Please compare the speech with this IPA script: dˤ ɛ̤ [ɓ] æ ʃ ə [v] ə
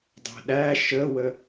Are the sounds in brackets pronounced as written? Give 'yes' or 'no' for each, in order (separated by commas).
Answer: no, no